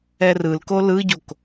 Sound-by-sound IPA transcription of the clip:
ɛ r ɯ l k o l ɯ ɟ o k

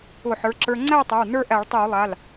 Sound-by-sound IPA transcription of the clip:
ʊ˧˩˧ ħ ə˞˩˧˩ ǁ ə˞˧ ŋ͡ǀ æ˥˧ tˤ a˩˧˩ w n ə˞˥˧ ʔ æ˧˩˧ ɭ tˤ ɛ˧˩˧ w lˠ a˩˧˩ l

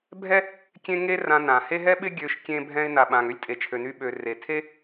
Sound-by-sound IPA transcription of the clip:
bʱ ɛ˥ | kʲ ẽ˥ ŋ e˥ r ã˧ n ã˩ h e˥ ɦ ɛ˥ ɓ ɪ˥ ɡʲ ø˧ ʃ kʲ ẽ˧ bʱ ɛ̃˧ ɪ̯ n a˩ ɓ ã˩ ŋ ø˥ lʲ tʼ e˩ t͡ʃʰ ø˩ n y˧ ɓ ø˩ r e˩ tʰ e˥

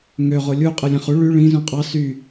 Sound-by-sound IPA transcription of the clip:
ŋ ø ʁ o lʲ u qʼ ɯ lʲ æ̃ χ u ɭ y ɭ ĩ z ũ qʼ ɑ s y

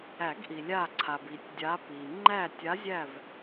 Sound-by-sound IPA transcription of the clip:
æ˨˩˦ ɡ ʔ i˩ lʲ a˧˩ ǀʰ a˩ b i˨˩˦ tʲ dʲ a˨˦ p i˩ ŋ͡ǃ æ˧˩ tʲ a˨˦ zʲ æ˧˩ v

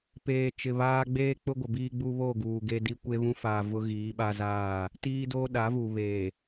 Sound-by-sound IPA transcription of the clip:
p eː˨ t͡ʃ ɪ˨ β aː˦ ɡ͡b eː˦ k͡p ʊ˦ ɡʷ ɪ˨ b iː˦ ɡ͡b u˦ β o˦˨ ɡ uː˨ ɡ e˦ d i˦ kʷ e˦ β ũ˦ f aː˨ v ʊ˦ ɣ iː˨˦ ɓ a˦ z aː˦˨ | t iː˦ d oː˦ ɗ a˨˦ v u˨ β eː˨

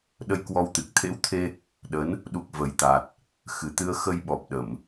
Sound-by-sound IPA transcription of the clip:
ɗ ə˧ j k w ɔ˧ w t̪ ɨ˨˩ k̚ t̪ʰ ḛ˧˥ w t̪ʰ e˧ | ɗ ə˨˦ n | ɗ u˨˩ k̚ v ə˨˩ j t̪ a˨˩ t̚ | x ɨ˨˩ t̪ ɨ˧ ə̯ x ə˧ j ɓ ɔ˨˩ p̚ ɗ ə˧˩˨ m

